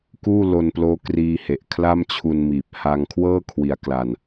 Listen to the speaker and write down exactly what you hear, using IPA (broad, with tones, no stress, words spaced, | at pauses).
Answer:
kuː˥˩lo˧nploː˦˥ kriː˧he˨˩ʔ kʰla˥˩mt͡ɕʰu˧nmiː˨˩p̚ ha˧ŋkʰwɤː˥˩ kʰwi˩˦a̯ kla˧n